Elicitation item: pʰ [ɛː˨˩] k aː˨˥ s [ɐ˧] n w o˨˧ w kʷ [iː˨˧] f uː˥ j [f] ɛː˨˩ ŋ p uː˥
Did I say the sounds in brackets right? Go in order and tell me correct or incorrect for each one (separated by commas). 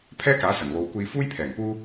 incorrect, incorrect, incorrect, incorrect